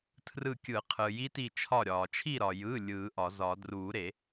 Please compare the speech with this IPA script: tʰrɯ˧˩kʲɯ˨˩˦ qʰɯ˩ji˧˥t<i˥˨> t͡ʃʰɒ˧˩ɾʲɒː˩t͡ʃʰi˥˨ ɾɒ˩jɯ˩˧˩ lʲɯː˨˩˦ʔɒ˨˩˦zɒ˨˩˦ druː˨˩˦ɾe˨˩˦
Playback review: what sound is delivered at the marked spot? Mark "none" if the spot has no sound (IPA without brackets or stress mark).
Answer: i˧˩